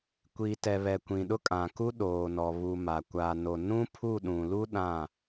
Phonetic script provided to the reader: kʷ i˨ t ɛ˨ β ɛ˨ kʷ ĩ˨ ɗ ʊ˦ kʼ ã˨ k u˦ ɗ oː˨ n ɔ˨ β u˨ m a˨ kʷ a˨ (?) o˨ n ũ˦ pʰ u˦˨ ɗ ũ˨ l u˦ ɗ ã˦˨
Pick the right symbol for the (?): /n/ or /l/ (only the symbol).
n